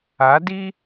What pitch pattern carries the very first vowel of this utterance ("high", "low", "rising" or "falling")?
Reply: rising